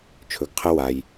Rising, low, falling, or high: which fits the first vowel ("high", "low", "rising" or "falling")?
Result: rising